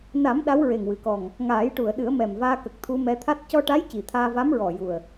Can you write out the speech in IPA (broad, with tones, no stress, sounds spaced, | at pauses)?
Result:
n a˨˩˦ m ɗ a˧˥ w ɹ e˨˩ ŋ w ɨ˨˩˨ k ɔ˨˩ ŋ | ŋ aː˨˩˦ j ʈ u˨˩˨ ə̯ ɗ ɨ˨˩˦ ə̯ m ɛ˨˩ m v aː˧ k ə˨˩ k̚ t̪ʰ u˧ m ɛ˧ t̪ʰ a˦˥ t̚ c ɔ˧ ʈ a˧˥ j c i˨˩ t̪ʰ aː˧ v a˧˥ m ɹ ɔ˨˩ j u˨˩ ə̯